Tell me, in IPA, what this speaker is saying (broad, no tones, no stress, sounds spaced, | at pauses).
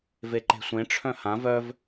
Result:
v e ǃ e̤ sʷ ẽ ʈ͡ʂʰ œ̃ h ã v œ v